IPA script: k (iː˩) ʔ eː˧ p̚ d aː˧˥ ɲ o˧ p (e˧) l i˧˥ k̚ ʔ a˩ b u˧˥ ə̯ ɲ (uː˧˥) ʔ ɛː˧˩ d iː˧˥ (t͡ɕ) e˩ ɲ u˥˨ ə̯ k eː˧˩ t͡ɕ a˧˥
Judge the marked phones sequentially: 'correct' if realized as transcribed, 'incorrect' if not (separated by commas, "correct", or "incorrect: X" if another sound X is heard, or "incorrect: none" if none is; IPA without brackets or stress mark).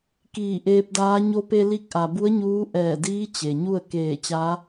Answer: incorrect: iː˧˩, correct, correct, correct